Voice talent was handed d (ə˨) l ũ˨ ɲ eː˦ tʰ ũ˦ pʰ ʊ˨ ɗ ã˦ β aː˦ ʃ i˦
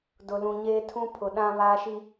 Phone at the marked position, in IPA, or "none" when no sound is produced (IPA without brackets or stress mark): ʊ˨